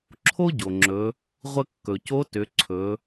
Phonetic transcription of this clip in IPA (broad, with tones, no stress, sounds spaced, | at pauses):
ǁʰ o˥ ɟ o˩ ŋ͡ǁ ɵ˩˧ | ʁʷ ə˧ kː ɵ˩ c o˧˥ t ʏ˩˧ ǀʰ ɵ˩˧